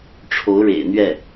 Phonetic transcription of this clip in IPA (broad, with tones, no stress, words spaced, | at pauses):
ʈ͡ʂʰo˧˥ʊ̯ɻḛ˨˩ɪ̯n̪ɥɛ˥˩